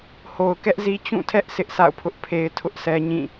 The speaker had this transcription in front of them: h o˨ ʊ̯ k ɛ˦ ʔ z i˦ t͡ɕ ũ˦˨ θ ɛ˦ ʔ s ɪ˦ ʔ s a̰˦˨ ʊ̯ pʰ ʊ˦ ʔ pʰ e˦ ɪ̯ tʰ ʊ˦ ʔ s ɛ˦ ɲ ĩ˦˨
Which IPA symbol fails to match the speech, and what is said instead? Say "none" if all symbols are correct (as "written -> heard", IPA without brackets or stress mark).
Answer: θ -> tʰ